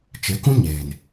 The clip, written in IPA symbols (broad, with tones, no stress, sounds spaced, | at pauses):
t͡ʃ e˨˦ k ũ˦ ɲ eː˨ n